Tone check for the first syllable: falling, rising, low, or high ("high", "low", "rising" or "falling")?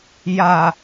low